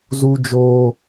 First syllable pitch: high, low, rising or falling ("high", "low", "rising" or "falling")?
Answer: high